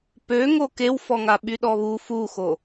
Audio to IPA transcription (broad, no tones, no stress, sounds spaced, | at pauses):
p ø ŋ o k e w f ɔ ŋ a ɓ y ɗ ɔ β u f u x o